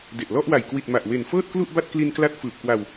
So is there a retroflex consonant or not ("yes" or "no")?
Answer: no